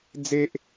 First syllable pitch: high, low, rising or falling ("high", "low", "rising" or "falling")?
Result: high